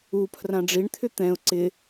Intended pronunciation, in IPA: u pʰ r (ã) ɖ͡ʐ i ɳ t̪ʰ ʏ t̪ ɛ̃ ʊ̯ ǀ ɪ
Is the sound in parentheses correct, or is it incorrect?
correct